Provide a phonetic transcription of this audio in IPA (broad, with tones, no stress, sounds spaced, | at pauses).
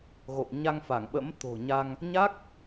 ɣ o̰˧˨ w ɲ a˧ ŋ f a˧˩ ŋ ɓ ə̰˧˥ m t̪ o̤˨˩ ɲ a˧ ŋ | ɲ a˦˥ k̚